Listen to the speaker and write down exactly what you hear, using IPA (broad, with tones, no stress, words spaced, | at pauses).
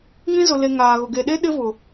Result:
ŋĩ˦zʊ˨ le˨ ŋaː˨ɣʊ˨ ɡe˨ɗe˦ ɗɪ˦vʊ˨